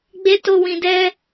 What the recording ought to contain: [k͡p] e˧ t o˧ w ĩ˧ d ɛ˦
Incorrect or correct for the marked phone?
incorrect: ɡ͡b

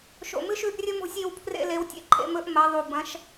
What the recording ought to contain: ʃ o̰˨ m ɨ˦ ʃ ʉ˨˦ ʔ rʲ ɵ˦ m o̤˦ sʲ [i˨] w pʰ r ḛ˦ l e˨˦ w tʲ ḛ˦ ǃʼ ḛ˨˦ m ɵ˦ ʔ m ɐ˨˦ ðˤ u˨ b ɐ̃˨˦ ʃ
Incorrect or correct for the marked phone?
incorrect: i˨˦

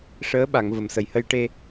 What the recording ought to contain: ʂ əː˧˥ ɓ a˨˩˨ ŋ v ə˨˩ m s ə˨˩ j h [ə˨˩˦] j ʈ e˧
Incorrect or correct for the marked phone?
incorrect: ə˧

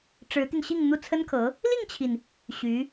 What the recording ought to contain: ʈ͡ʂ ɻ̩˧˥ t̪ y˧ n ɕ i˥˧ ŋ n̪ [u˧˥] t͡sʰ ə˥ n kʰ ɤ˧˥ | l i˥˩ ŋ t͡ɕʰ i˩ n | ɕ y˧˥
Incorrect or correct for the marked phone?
incorrect: u˥˩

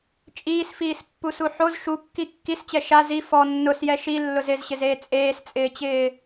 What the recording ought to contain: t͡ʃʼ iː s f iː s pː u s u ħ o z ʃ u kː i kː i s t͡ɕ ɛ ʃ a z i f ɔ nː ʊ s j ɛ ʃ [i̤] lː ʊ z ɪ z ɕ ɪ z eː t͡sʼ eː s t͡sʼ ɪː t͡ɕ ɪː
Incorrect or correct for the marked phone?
incorrect: i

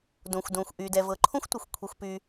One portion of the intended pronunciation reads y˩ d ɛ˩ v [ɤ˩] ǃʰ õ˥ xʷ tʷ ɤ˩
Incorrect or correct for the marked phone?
correct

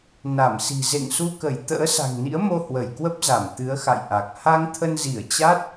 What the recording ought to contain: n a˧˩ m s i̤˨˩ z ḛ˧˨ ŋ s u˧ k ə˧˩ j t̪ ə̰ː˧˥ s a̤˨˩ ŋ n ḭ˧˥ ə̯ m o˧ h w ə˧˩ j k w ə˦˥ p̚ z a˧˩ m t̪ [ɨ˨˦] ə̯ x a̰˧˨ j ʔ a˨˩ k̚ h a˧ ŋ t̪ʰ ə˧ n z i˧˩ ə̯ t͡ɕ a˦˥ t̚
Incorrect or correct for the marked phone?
correct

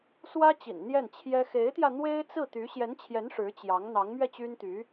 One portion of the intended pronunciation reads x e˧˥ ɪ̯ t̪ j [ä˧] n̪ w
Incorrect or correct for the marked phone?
correct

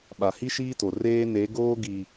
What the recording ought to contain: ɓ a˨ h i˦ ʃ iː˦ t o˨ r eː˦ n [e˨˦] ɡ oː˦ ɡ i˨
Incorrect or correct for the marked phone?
correct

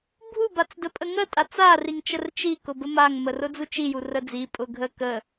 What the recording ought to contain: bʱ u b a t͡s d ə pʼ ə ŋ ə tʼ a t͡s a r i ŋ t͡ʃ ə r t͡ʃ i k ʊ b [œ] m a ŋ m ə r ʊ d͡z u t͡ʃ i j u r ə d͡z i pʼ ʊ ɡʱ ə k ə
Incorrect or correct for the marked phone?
incorrect: ə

